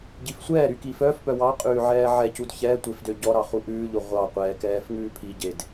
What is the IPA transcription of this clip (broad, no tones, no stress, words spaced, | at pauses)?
ɟifsʷɛːɾy kifœːfpœ wɑ qʼʉːʕɛːʕɛcud çɛtʷef døɟɔɾɑ χuʔʉːʎo ʁʷɑqʷɛː kɛːfŋʉːpʰiɟed